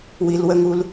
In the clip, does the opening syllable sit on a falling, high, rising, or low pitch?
low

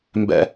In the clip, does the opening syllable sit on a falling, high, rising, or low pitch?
high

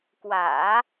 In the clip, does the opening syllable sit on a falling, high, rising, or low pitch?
low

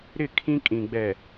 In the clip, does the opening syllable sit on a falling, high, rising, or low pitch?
falling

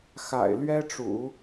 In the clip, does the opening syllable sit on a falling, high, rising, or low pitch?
low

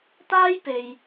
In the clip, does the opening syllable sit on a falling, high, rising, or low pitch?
high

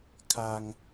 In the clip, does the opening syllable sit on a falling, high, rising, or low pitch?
high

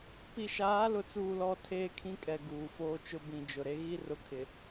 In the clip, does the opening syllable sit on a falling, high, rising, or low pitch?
low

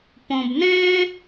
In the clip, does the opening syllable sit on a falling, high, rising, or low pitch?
low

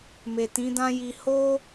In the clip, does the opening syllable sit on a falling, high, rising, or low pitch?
low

